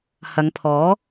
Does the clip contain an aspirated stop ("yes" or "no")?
yes